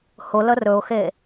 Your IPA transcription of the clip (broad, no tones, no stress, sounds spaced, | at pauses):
h ʊ l ə r ɵ ʊ̯ x e